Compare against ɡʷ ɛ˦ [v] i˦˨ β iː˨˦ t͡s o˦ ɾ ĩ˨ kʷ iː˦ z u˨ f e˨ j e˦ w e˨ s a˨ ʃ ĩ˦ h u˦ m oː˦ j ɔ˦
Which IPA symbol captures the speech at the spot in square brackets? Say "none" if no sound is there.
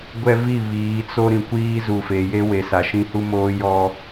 v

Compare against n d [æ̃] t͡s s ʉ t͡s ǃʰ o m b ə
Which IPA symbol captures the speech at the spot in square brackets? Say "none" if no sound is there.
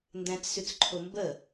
æ̃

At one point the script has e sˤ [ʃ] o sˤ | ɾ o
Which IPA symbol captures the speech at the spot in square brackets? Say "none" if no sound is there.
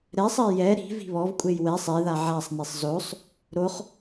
z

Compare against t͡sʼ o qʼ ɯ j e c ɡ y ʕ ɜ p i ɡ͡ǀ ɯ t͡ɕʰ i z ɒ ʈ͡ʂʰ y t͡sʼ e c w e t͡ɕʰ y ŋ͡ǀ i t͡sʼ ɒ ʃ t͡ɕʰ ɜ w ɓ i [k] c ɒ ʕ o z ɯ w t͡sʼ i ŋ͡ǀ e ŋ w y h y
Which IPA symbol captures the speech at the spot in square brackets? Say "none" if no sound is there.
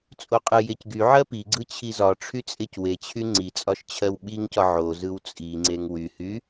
ŋ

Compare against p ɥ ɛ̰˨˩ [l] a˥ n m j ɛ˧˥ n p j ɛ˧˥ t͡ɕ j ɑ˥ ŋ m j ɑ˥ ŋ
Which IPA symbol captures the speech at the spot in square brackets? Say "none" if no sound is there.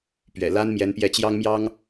l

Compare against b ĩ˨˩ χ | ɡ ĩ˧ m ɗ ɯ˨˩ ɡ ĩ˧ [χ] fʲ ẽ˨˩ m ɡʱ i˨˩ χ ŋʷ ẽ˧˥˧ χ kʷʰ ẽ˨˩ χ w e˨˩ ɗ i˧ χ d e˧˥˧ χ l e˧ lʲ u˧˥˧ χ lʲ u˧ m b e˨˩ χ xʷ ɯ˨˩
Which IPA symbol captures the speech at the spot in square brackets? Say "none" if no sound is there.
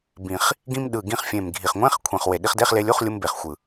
χ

